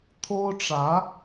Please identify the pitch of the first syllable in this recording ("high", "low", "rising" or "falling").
high